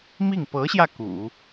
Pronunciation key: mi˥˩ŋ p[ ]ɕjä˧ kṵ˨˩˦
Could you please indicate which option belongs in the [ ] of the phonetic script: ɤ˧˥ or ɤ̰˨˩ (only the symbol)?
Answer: ɤ˧˥